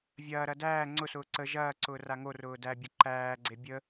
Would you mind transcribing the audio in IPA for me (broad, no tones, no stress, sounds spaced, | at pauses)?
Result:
vʲ ɐː ɾ ɐ d æː ŋ͡ǀ ʊ s ʊː ǀ ə ʒ ɐː ǀ ʊː r a ŋ o r ʊː d æ bʲ ʊ ǃ æː ɡ͡ǀ e bʲ ə